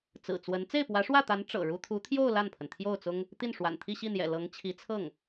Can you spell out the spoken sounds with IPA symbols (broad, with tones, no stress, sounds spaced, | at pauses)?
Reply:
t͡s ɹ̩˨˩ t͡s w ə˧˥ n t͡s e˥˩ ɪ̯ p w ä˧˥ ʂ w ä˥˩ t̪ a˧˥ n ʈ͡ʂ ɤ̰˨˩ ɻ u˥ t̪ʰ u˧˥ t̪ʰ j o˥˧ ʊ̯ l a˥˩ n pʰ ə˩ n t̪ʰ j o˥˩ ʊ̯ t͡s ʊ˥ ŋ | t̪ i˥˩ n ʂ w a̰˨˩ n t̪ʰ i˥˧ ɕ i˥˩ n̪ j ɛ̰˨˩ l ɤ˧˥ ŋ t͡ɕʰ i˧˥ t͡sʰ ɤ˥˩ ŋ